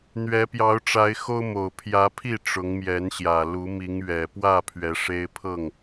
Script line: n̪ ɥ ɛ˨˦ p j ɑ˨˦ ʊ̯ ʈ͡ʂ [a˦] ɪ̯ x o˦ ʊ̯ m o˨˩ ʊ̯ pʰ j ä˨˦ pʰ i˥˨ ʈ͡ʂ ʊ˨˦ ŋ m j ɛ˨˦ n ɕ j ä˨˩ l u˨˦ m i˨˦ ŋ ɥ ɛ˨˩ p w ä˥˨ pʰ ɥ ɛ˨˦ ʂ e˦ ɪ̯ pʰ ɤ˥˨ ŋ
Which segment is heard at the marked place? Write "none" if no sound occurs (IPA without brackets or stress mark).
a˨˦